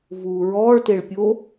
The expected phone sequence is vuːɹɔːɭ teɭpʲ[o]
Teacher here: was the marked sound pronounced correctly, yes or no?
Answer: yes